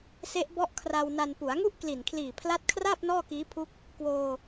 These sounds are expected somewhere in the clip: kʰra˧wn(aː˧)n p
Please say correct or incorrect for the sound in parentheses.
incorrect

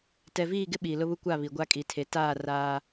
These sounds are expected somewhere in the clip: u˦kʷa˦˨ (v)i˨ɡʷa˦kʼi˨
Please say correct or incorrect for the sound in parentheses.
incorrect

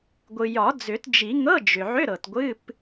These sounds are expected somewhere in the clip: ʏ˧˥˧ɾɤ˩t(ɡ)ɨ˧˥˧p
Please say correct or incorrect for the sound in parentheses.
incorrect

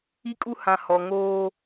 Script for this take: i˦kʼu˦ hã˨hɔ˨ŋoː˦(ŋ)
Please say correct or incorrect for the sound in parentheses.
incorrect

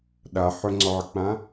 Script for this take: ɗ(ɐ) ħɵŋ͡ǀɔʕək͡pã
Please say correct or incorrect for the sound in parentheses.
incorrect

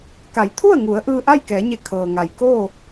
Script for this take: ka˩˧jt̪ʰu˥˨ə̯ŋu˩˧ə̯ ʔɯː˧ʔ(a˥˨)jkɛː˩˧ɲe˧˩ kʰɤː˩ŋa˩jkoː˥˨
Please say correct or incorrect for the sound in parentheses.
correct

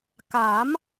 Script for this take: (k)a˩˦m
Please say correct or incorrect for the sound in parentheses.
correct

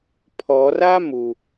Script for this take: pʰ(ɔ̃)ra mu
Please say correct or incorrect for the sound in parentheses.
incorrect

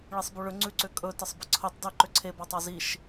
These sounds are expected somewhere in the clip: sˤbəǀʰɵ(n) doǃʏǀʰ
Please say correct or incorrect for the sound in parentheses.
incorrect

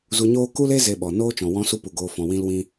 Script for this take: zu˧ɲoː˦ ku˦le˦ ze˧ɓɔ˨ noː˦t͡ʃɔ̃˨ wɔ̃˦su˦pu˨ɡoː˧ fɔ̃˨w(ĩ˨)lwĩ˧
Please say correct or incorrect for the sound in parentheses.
incorrect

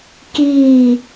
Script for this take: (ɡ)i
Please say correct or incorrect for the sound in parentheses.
incorrect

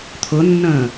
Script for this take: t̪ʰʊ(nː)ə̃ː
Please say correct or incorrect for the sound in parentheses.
correct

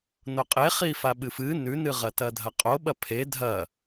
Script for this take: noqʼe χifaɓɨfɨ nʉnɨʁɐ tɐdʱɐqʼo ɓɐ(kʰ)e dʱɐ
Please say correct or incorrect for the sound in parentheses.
incorrect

